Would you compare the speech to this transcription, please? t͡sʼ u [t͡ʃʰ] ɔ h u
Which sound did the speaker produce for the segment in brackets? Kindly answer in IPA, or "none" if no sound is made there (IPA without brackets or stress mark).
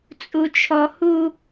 t͡ʃʰ